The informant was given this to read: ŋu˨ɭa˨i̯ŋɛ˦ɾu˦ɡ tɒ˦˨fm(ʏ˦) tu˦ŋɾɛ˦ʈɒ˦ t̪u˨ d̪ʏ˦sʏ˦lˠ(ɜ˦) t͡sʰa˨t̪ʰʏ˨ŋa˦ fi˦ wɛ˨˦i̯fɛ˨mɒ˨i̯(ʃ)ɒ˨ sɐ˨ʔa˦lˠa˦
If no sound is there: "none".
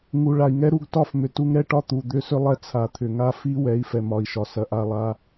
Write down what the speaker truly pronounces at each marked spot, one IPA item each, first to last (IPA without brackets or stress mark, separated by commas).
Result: ʏ˨, ɛ˦, ʃ